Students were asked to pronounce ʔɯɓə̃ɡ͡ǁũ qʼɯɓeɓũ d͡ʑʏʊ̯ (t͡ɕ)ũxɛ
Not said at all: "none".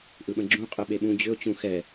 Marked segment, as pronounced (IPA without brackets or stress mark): t͡ɕ